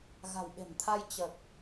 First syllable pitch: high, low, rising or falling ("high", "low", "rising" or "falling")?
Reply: low